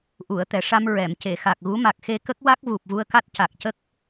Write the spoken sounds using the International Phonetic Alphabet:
ʔ u˨˩˨ ə̯ t̪ ɛ˨˩ ʂ a˧ m ɹ ɛ˨˩˨ m c e˨˩˨ x a˨˩ k̚ ɣ u˧˥ m a˨˩ k̚ x e˧ k ə˦˥ k̚ w a˦˥ k̚ v u˨˩ p̚ v u˧ ə̯ k a˦˥ t̚ c a˨˩ k̚ c ə˦˥ k̚

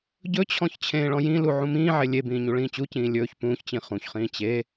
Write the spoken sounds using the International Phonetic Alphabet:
ɟ ɵ t͡ɕʰ ɔ̃ ç t͡ɕʰ ẽː ɭ ɔ̃ j ĩ l u ʕ ũ m ĩː ʕ e lʲ e b ĩː ɲ u ɭ ĩː t͡ɕ u c ĩː lʲ ɵː ç p ũː ç t͡ɕ ĩ χ ũ ç χ ĩː t͡ɕ e

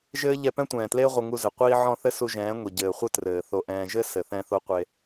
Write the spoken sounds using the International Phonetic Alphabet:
ʒ ɘː˦ ʎ ɛ˧ p ɛ̃˦ tʷ ɛ̃ː˨ t l eː˦ ʁʷ ɘ˧ ŋ u˧ z ɘ˨ qʷ iː˧ ʕ ɔ̃˦˨ θ ɘ˦ s u˧ ʒ ɛ̃ː˨˦ ŋʷ i˨ ɟ ɘː˨ χʷ ɘ˦ t r ɘː˨ θ o˧ ʔ ɛ̃ː˧ ʒ ɘ˦ s ɘ˨ θ ɛ̃˧ θ o˧ qʷ e˧

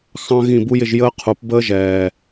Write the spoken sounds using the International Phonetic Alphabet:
x ɑ̃˦ ɣ ĩ˦˨ b u˦ j ɪ˧ ʒ j əː˦ qʰ u˨˦ p b əː˦ ʒ ɛː˨

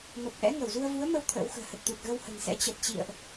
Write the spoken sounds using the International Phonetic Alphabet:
m ə˨˩ p̚ ʔ ɛ̰˧˥ ŋ ə˧˩ w z u˧ ə̯ v u˨˦ ə̯ m ə˧ w t̪ʰ ə̰ː˧˥ w x ə̤ː˨˩ h ə˨˩ t̚ t̪ u˨˩ t̚ ɣ ə˧ w h ə̤˨˩ n s ɛ̰˧˥ t͡ɕ ə˨˩ t̚ t͡ɕ ḭ˧˨ ə̯ ʔ

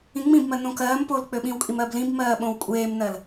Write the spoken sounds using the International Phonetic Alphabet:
ĩ ŋ͡m ĩ b m ɜ n õ k ɜː m p o l k͡p ø ɓ ĩ w kʼ i m ɜ b l ĩ b m ɜː ɓ õ w kʷʼ eː m n ɜ l

